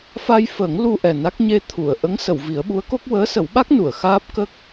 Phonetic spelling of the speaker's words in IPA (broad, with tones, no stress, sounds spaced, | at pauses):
f a˧ j f əː˨˩˦ ŋ l u˧ ʔ ɛ˨˩ n a˦˥ k̚ ɲ e˧ t̪ʰ u˨˩˨ ə̯ ʔ ə˧˥ ŋ s ə˨˩˨ w v i˨˩˦ ə̯ ɓ u˧˥ ə̯ k o˦˥ k̚ w əː˧˥ s ə˨˩˦ w ɓ a˦˥ k̚ n u˨˩˨ ə̯ x aː˦˥ p̚ k ə˦˥ k̚